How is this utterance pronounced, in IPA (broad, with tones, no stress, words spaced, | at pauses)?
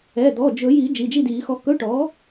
ɛ˩˧˩d̪ɔ˩˧˩d͡ʒɵ˨˩˦ji˨˩˦ d͡ʒi˩˧˩d͡ʒi˥˨diː˨˩˦xɔ˧ kɵ˧˥˧ʈɔ˩˥